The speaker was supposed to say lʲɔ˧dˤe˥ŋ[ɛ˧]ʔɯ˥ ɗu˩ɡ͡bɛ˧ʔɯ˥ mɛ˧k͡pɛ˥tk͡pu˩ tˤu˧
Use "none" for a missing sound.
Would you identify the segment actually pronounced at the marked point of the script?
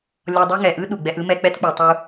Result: ɛ˩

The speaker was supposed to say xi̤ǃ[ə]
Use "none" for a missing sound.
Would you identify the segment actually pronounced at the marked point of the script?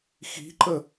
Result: ə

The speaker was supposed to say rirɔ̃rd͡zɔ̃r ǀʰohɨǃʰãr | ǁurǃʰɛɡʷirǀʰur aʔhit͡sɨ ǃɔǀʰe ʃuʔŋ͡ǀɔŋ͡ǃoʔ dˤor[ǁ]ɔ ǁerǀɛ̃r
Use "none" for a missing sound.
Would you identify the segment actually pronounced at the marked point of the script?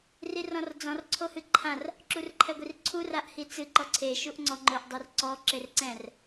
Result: ǀ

